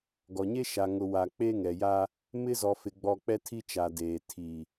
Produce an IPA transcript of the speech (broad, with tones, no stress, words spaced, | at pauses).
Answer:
ɡɔ˨ɲe˦ ʃa˨ŋʊ˨ wa˨ k͡pe˦ŋɛ˨ja˦ | mɪ˦zɔ˨fɪ˨ɡ͡bɔ˨ k͡pɛ˦tʰi˦t͡ʃa˨deː˨ tʰi˨